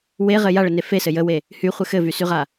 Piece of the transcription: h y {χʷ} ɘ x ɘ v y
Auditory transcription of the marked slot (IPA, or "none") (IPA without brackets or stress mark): χʷ